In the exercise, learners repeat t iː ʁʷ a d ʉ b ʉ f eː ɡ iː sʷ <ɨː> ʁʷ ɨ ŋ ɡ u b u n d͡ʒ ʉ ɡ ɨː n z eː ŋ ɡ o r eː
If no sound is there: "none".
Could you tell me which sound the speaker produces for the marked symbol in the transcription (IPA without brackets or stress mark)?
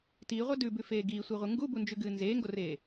iː